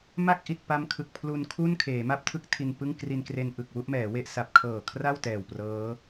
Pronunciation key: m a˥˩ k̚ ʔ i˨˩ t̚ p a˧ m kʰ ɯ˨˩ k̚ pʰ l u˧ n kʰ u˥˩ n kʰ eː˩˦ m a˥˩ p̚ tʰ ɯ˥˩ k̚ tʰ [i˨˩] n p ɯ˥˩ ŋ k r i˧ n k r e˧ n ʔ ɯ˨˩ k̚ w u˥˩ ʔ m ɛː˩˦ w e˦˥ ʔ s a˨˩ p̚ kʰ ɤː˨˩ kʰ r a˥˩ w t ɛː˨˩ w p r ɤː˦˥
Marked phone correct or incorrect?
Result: incorrect